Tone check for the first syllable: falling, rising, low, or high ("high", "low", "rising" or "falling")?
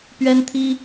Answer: high